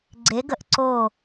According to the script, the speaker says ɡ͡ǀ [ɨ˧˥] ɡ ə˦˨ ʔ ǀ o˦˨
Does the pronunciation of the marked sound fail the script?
yes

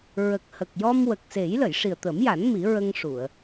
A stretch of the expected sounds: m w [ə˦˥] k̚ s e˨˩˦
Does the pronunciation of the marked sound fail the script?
yes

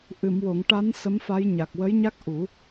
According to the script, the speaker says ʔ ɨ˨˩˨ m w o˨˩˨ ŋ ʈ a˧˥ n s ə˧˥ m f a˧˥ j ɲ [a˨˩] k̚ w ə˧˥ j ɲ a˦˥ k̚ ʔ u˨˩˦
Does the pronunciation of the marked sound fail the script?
no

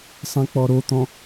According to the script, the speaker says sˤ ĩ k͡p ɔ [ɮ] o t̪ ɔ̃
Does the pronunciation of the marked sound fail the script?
yes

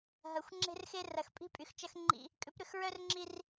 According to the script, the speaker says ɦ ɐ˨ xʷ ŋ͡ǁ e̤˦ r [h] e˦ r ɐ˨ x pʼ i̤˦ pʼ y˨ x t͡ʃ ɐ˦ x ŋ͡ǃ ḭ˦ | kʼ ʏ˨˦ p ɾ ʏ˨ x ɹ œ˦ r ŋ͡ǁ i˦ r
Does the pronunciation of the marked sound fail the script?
yes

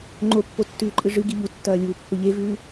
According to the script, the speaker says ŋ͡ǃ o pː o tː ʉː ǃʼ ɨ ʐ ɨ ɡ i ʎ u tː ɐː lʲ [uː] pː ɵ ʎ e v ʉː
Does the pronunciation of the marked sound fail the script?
no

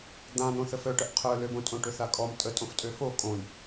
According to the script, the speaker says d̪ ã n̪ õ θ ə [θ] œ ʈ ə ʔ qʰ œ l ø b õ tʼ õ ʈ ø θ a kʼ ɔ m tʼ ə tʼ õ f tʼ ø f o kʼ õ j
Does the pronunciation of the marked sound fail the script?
yes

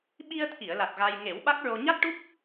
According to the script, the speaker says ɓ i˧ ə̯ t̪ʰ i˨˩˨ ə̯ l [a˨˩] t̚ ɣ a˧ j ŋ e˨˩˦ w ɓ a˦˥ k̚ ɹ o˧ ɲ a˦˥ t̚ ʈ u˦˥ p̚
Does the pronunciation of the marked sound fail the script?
no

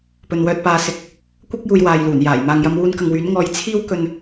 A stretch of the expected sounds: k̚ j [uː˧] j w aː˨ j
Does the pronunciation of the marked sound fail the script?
yes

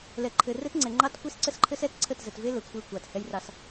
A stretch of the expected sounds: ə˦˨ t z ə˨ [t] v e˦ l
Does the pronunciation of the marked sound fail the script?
no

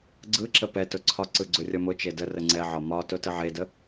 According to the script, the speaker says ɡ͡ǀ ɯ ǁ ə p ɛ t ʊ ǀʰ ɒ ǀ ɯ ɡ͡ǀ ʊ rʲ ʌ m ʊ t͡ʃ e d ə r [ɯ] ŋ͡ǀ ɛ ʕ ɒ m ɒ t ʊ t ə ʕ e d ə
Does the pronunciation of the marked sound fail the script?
yes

